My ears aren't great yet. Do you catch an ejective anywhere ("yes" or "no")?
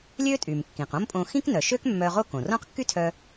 yes